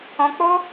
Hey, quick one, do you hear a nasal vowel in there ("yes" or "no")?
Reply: yes